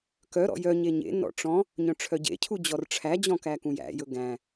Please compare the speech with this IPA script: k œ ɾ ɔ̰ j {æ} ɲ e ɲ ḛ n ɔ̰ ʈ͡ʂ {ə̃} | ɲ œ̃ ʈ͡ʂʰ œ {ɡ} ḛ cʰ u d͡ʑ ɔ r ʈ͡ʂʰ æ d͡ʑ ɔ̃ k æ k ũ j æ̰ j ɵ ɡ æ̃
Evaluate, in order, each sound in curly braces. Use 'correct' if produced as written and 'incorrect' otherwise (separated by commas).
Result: incorrect, incorrect, incorrect